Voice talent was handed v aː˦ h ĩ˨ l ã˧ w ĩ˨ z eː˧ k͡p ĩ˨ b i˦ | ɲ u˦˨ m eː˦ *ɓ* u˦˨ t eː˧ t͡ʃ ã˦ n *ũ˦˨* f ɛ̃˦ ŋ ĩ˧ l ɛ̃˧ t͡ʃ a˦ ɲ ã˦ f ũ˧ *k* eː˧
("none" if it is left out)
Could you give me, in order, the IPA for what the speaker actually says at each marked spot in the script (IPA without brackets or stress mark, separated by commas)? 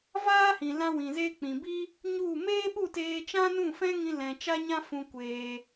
ɓ, ũ˦˨, kʷ